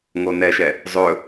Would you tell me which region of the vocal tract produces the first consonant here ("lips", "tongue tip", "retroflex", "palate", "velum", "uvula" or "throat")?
velum